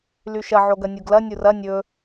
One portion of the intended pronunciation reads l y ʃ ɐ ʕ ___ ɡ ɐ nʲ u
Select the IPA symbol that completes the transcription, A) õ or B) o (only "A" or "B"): B